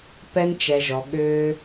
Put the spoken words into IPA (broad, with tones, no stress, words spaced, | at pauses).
pɛ˦nt͡ʃɛ˧ʒɔ˧ ɠʏː˦